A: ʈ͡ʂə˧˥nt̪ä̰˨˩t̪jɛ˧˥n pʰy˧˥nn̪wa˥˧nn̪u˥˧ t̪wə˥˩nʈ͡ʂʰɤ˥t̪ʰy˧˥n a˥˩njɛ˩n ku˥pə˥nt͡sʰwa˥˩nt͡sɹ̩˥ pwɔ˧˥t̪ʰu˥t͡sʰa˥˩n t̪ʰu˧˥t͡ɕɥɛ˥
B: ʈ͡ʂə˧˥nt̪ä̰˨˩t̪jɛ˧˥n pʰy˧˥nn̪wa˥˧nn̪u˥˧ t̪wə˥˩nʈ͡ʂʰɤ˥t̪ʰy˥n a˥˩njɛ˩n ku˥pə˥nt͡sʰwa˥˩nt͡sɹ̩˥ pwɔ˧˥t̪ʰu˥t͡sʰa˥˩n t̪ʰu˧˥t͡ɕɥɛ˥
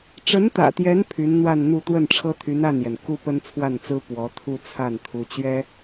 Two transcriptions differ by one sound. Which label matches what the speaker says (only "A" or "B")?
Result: A